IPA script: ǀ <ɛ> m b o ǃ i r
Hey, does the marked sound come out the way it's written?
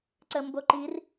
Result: no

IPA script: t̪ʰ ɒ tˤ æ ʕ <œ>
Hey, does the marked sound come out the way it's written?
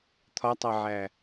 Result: no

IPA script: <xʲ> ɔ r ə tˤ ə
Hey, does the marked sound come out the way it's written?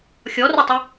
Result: yes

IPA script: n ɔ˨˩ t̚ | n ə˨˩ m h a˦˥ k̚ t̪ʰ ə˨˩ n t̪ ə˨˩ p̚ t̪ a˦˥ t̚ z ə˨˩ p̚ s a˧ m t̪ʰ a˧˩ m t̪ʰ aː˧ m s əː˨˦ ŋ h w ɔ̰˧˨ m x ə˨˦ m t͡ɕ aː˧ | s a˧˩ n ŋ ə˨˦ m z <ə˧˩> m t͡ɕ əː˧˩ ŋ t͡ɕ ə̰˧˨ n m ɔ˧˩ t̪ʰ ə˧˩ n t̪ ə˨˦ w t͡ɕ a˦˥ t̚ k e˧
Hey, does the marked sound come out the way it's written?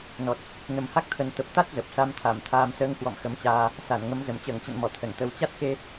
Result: yes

